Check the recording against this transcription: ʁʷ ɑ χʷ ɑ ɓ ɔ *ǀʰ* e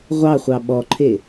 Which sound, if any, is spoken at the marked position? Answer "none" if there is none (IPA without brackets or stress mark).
ǃʰ